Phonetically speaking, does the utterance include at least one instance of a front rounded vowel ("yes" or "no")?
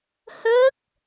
no